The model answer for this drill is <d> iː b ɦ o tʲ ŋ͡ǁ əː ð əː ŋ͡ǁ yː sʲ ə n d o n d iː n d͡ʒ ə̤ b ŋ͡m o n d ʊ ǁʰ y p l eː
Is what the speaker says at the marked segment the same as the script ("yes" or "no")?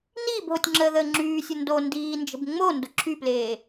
no